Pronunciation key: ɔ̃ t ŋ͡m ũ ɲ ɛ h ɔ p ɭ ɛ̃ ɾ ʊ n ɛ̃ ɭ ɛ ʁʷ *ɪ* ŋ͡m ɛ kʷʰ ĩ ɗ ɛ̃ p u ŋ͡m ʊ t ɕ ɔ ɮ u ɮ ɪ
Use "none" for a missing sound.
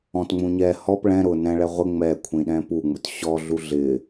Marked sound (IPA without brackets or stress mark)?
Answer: ɪ